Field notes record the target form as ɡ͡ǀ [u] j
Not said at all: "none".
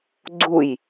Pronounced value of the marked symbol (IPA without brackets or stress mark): u